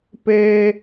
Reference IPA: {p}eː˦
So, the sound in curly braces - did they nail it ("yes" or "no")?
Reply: yes